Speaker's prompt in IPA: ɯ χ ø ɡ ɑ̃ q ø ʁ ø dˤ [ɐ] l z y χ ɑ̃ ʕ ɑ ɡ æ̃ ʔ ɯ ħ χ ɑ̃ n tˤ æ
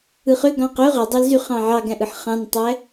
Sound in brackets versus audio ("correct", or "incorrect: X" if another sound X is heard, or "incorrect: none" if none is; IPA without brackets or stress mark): incorrect: ɑ